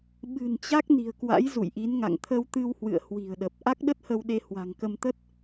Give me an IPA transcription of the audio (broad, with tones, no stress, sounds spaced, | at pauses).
ɓ ɨ̤˨˩ n t͡ɕ a˦˥ k̚ n i̤˨˩ ə̯ k w a̰˧˥ j z ṵ˧˨ j ʔ i˨˦ n ŋ a̰˧˨ ŋ t̪ʰ ə˧ w t̪ ɨ˧ w h w ɨ̰˧˨ ə̯ h w i̤˨˩ ə̯ ɗ ə˨˩ p̚ ʔ a˦˥ k̚ ɗ ə˦˥ t̚ h ə˧ w ɗ e˧ h w a̤˨˩ ŋ k ə˧ m t̪ ə˦˥ t̚